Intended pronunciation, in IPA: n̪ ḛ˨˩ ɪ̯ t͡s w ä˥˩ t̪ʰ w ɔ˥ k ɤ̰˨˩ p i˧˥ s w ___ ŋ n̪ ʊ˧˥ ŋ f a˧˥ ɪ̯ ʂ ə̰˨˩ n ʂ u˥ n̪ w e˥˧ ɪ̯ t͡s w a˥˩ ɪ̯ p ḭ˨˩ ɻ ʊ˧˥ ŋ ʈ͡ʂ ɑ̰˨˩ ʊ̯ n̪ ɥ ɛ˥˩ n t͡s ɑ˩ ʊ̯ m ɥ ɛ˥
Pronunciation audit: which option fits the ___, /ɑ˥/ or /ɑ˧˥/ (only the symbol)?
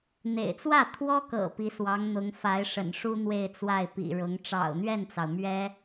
ɑ˧˥